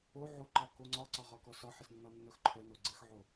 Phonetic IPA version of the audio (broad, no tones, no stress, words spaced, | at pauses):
o ʕoǃɒ koŋ͡ǀɒǀɒʁɒ kɔsɒħɪsnːɒ nːœxǃʰœno ɡ͡ǀɘxʕo